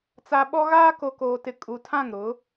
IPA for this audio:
t͡s a˨ ɓ ɔ˦ ɣ aː˦ k o˨ k oː˨ t ɪ˨ kʼ u˨ tʰ ã˦˨ ŋ ɾ ʊ˨˦

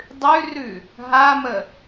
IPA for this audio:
dˤ ʉ r ʉ | ɦ a m ə

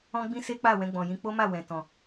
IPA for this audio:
ɔ̃˦ ɡ͡b ĩ˦ s e˦ k͡p a˦˨ w ɛ̃˧ ɡ͡b ɔ̃˨ j ĩ˧ k͡p o˦ m a˦˨ w ɛ̃˨ t ɔ̃˨

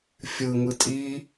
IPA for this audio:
fʲ ɯ ŋ ɯ tʼ i

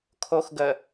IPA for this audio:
kʰ o x ɡ ə

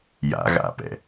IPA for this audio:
j a̰ ɣ a̰ p ɛ̰

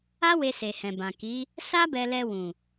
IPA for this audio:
a˦ w e˧ s e˨ h ɛ̃˨ b ã˨ k i˨˦ | s a˦ b ɛ˧ l ɛ˧ w ũ˨

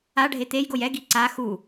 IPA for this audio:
a ɖʱ e t̪ e j ɡ o j ɛ ɡ i ǀ a x u

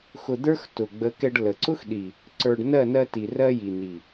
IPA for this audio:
x ʊ˧ d̪ ə˞˦ x t ʊ˨ ɡ͡b ə˨˦ k ɛ˧ ɖ l ə˨ ǀ ʊ˦ x ɗ i˨ | ǀ ə˞˧ ɖ n ɜ˦˨ n ɜ˧ t i˨ r ɜ˧ j i˨ n i˨

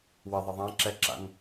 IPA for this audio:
w ə ðˤ ə ðˤ ã ǁ ɛ ǁ a̰ n

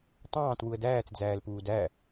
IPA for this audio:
tˤ ɑ̃ː t w u ə̯ d æː t͡s d͡z æː l p uː d æ

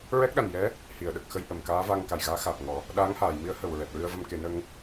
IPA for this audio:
ɹ ɛ˦˥ k̚ ɗ a˨˩ n j ɛ˧˥ | h i˨˩˨ ə̯ ɗ ə˨˩ k̚ x ə˧ j ʔ ə˨˩˨ m k aː˧˥ v a˧ ŋ k a˨˩ j ɣ aː˧˥ x aː˨˩ p̚ ŋ ɔ˨˩˦ | ɗ a˧˥ ŋ h aː˨˩˨ j m i˧˥ ə̯ h ə˨˩ w ɹ ɛ˨˩ t̚ ɹ ɨ˧ ə̯ v ə˧ m k e˨˩˦ n ə˧ ŋ

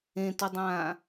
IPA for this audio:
ẽ t o dˤ ãː

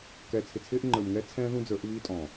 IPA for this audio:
k ɛ˨ t͡sʰ ɪ˨ t͡sʰ ɪː˦ ʔ ŋ͡ǃ ə˞˨ m ŋ ɛ˦ t͡sʰ ɛ̃ː˦ ð ũ˦ d͡z ə˞˨˦ ʔ β iː˦ tʼ ɔ̃˨

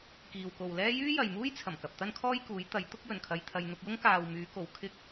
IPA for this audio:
k iː˨ w k o˨ w l ɛː˥ j yː˥ j ɐ˨ j m uː˥ j t͡sʰ ɐ˨˩ m k ɐ˨ p̚ t̪ ɐ˥ n kʰ ɔː˥ j k uː˨˥ j t̪ ɐ˨˥ j t̪ ʊ˥ k̚ j ɵ˨˩ n kʰ ɐ˨ j t̪ʰ ɐ˨ j n̪ ʊ˧ k̚ j ʊ˥ ŋ k aː˨ w m yː˨˧ k o˨ w kʰ ɪ˧ k̚

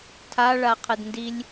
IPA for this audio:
tʰ a ɭ a qʰ ɘ d n d i lʲ

